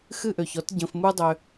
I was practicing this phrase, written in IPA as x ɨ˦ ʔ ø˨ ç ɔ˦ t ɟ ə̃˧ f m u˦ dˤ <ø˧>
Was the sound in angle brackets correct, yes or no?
yes